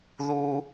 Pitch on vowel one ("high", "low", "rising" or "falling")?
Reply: low